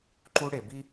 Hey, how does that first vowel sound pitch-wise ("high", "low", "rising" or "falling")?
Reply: high